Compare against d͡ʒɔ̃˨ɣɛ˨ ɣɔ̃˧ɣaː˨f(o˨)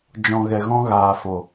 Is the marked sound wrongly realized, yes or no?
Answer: no